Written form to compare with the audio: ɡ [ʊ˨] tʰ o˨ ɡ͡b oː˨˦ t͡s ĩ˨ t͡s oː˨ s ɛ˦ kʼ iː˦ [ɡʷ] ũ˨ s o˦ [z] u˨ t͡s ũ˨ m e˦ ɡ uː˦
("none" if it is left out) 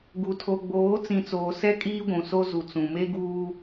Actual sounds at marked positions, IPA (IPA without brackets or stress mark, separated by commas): u˨, ɡʷ, z